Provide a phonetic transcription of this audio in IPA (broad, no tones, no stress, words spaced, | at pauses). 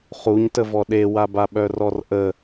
χuɲtəvɔ ɗewaba ɓœrɔrʔə